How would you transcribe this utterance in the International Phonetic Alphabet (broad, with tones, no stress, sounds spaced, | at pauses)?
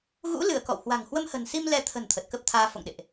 ɣ ṵ˧˥ l ɨ˧˩ ə̯ k ɔ̰˧˨ w h w a̤˨˩ ŋ h w ə˧ m h ə̤˨˩ n s i˧ m l ɛ˨˦ t̪ʰ ə̤˨˩ n t̪ʰ ə˨˩ t̚ k ə˦˥ p̚ t̪ʰ aː˧ f o̰˧˨ ŋ ɗ ḛ˧˨ ʔ